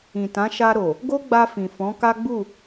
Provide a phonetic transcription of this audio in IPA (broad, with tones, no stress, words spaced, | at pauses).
ĩ˨tã˨˦ ʃa˧ɾo˨ | ɡo˦ɡ͡ba˧ fĩ˨fɔ̃˨˦ ka˦ɡ͡bu˦˨